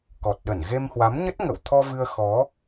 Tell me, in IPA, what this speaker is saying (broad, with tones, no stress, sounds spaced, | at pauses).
k ɔ˨˩ t̚ ɗ ə˧˩ n ɣ e˧ m h w a˨˦ m ɲ ə˦˥ t̚ ŋ ə̰˧˨ w t̪ʰ ɔ˧ v ɨ˧ ə̯ x ɔ˨˦